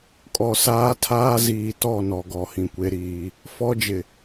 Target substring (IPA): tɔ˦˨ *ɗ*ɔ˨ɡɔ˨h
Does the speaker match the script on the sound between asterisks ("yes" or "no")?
no